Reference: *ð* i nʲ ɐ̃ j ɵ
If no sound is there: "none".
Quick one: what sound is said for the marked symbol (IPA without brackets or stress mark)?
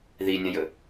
ð